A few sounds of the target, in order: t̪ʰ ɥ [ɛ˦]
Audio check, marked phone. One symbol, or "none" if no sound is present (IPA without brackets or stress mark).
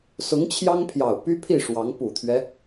ɛ˦